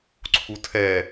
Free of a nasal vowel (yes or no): yes